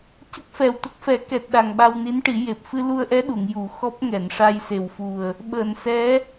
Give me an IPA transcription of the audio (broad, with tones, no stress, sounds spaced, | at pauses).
c ə˦˥ k̚ f ɛ˨˩ w t̪ ə˦˥ k̚ f ɛ˨˩˦ k ɛ˨˩ t̚ ɗ a˨˩ ŋ ɓ a˧ w n i˧˥ n ʈ i˨˩˦ j e˨˩ p̚ f ɨ˧ l u˧ ə̯ ʔ ɛ˧˥ ɗ u˨˩˨ ŋ j u˨˩˦ x ɔ˦˥ p̚ ŋ ɛ˨˩˨ n ʂ a˧ j s e˨˩ w f u˨˩ ə̯ | ɓ əː˨˩˨ n s ɛ˧˥